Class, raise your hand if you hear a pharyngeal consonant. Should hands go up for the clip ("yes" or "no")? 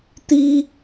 no